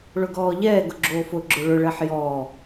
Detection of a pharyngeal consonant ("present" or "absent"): present